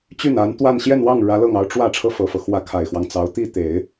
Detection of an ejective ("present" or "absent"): absent